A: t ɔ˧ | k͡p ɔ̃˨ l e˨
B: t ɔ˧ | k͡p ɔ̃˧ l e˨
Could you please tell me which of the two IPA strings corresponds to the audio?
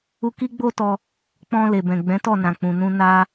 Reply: B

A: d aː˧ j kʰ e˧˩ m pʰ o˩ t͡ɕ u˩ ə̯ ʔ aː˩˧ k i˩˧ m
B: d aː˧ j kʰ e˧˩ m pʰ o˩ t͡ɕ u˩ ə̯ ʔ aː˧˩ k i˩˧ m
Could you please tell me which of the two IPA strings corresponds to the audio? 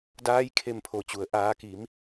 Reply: A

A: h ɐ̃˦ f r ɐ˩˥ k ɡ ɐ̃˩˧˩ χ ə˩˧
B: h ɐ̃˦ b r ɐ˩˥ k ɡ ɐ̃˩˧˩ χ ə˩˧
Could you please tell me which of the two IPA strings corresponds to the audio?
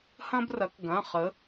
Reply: B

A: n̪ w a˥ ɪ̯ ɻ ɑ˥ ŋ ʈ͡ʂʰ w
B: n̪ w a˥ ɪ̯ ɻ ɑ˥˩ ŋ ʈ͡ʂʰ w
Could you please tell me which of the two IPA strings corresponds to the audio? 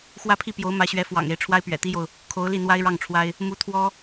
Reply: B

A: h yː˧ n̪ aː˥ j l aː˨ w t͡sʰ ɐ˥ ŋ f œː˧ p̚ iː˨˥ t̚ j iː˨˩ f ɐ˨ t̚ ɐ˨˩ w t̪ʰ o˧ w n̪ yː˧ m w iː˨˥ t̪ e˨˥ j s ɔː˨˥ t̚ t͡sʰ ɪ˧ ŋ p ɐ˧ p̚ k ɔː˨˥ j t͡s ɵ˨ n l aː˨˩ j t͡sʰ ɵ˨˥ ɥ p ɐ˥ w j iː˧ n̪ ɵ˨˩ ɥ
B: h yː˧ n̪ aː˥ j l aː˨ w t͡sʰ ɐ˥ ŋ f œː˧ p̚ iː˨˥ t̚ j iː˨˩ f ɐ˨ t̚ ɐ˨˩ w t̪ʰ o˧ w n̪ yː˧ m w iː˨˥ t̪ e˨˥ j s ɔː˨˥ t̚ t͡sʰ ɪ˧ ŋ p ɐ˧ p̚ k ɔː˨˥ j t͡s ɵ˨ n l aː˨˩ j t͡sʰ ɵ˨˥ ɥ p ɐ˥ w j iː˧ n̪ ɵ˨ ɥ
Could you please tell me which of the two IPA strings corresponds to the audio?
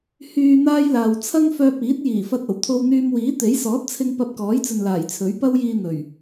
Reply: A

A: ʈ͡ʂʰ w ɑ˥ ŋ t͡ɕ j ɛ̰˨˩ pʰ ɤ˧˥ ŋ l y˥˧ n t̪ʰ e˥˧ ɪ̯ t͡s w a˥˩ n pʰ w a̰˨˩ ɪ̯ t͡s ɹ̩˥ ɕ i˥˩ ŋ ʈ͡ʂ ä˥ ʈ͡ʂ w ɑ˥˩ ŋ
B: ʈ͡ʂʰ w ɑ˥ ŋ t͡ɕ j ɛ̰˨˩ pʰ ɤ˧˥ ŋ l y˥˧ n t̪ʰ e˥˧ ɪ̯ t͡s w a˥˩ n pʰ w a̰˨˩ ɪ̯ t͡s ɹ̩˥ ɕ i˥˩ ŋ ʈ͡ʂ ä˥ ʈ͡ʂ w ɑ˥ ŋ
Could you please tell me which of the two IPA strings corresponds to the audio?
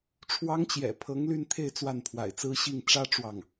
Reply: A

